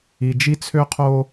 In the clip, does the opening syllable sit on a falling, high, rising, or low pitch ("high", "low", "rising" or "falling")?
low